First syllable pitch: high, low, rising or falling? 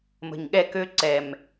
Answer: low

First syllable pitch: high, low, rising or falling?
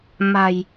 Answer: low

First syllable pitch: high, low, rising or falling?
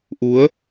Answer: rising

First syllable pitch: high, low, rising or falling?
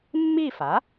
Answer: falling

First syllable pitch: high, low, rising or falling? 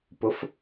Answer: rising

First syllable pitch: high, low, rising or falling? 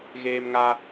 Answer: high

